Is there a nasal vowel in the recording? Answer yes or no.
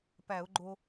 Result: no